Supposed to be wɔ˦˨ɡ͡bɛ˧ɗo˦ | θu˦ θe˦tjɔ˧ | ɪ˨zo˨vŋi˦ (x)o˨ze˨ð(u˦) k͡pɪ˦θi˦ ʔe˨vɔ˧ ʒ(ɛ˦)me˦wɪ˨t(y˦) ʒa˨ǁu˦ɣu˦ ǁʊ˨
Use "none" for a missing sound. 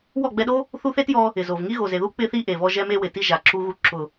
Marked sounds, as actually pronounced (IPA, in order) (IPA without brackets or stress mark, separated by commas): ɣ, u˦, ɛ˦, i˦